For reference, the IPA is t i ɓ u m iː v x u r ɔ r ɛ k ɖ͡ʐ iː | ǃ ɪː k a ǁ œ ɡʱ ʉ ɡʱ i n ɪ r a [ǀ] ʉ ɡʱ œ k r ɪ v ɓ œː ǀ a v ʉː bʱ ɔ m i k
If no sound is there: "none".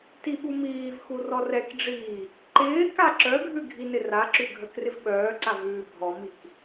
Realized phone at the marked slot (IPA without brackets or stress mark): ǁ